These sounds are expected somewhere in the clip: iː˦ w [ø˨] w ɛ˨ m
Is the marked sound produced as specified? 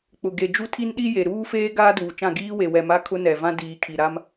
no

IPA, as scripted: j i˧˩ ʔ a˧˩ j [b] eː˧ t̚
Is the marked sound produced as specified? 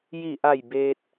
yes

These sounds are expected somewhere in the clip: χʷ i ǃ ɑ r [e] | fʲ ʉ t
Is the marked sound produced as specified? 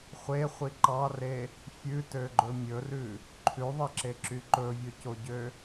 yes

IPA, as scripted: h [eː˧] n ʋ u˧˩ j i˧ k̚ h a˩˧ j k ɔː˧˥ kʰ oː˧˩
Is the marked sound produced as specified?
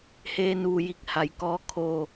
yes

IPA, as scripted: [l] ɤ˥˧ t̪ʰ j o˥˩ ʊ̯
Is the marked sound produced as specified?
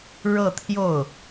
no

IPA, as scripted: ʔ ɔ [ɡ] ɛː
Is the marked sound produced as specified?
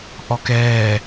no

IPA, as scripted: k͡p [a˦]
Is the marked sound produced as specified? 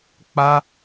yes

